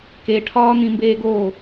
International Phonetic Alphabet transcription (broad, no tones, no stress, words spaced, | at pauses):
keʈʰɒː n̪ĩmbeːɡoː